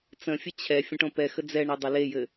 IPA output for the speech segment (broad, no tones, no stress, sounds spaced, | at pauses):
t͡s ə̃ fʲ ɘ t͡ɕʰ ɛ fʲ ə̃ ʈ õ p ɛ x ə d͡z ɛ ɳ ɛ dˤ ɘ l e j ɘ